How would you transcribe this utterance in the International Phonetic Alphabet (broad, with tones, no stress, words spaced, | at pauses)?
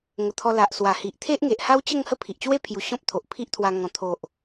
ŋə˨˩t̪ʰɔ˧ la˨ʔswa˨˩hi˨ʔ t̪ʰe˦ʔŋe˨ʔha˦wt͡ɕə˥˧ŋ hə˥˧pʰi˨ʔt͡ɕwe˦pʰju˨˩ ɕɔ̃˦p̚t̪ʰo˨ʔpʰi˦ʔt̪ʰwa˧ ŋɔ̃˨˩t̪ʰo˨ʔ